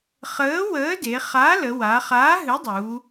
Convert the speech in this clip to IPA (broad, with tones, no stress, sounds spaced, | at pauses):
χ əː˨˥ w əː˨˥ d e˩˧ χ a˨˥ l ə˩˧ w a˩˧ χ aː˨˥ ɦ ɨ˨˥ dˤ u˩˧